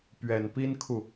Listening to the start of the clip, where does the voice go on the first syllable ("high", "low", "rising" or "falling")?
low